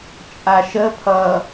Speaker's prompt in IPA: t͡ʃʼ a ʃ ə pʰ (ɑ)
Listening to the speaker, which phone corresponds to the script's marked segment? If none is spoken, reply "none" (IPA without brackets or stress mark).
ʌ